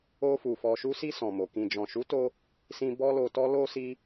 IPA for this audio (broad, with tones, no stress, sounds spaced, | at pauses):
o˧ f u˨ f ɔ˨ ʃ u˧ s i˧ s ɔ̃˨ m o˨ k ĩ˨ d͡ʒ ɔ̃˨ ʃ u˨˦ t o˧ | s ĩ˧ b ɔ˦ l o˧ t ɔ˦ l o˧ s i˧